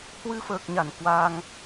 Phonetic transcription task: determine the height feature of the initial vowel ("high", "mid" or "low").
high